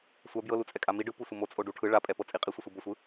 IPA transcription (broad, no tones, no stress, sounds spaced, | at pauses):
sʷ a b j ɤ l u t͡sʼ ɛ kʼ a m i ɖ ɯ p u sʷ ɤ m o t͡sʼ o ɖ u ʈʰ ɯ ɭ a pʼ ɛ p ɤ t͡sʼ i qʼ i sʷ ɯ sʷ ɯ b ɤ sʷ ɯ